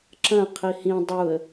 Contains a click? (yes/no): yes